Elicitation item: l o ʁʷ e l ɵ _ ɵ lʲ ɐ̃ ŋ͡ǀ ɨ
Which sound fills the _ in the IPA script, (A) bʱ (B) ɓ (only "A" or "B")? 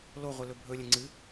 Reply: A